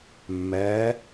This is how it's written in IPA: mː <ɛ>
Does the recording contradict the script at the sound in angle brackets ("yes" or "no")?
no